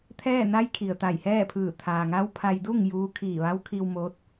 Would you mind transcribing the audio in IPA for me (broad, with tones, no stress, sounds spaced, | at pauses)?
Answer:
t̪ʰ ɛː˥˨ n a˧˥ j kʰ i˩ ə̯ t̪ a˧˩ j h ɛː˥˨ pʰ ɯː˧˩ t̪ʰ aː˩ ŋ a˧˥ w pʰ a˧ j d u˥˨ ŋ j uː˧˥ kʰ iː˧˩ ʋ a˧˥ w kʰ i˧ w m oː˧˥ t̚